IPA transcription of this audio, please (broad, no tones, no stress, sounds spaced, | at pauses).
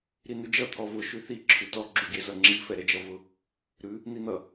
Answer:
ɾ i n̪ ʉ d͡ʒ ʌ t̪ʰ ɔ v ʊ ʃ ʉ θ i ǁʰ ʉ t ɔ ɡ͡ǁ u ɡʲ ɛ z ʌ ŋ͡ǁ i f ɛ ɾ ɛ d͡ʒ ʌ v ʊ | ɾ ʉ | n̪ i n̪ ʌ